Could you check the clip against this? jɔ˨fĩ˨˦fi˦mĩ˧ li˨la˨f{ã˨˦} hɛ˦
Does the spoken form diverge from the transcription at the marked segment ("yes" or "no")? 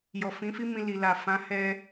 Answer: no